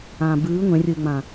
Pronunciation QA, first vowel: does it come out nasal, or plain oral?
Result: nasal